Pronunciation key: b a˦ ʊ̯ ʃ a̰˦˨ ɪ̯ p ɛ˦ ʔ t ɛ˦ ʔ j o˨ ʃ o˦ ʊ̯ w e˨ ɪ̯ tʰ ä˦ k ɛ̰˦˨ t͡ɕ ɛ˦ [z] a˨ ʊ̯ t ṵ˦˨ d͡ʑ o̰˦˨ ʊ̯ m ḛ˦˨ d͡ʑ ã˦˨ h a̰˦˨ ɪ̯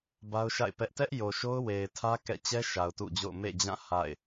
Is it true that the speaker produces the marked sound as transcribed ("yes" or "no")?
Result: no